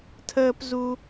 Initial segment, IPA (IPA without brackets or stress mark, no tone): tʰ